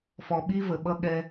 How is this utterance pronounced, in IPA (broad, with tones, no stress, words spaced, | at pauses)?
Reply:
fɔ˨ɓi˦və˨ɓʌ˦ ɠɛ˦